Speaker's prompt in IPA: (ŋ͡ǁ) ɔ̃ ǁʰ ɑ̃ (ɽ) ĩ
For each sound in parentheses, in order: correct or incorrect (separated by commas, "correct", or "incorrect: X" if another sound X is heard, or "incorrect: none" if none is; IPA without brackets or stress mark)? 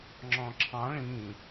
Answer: correct, incorrect: ɭ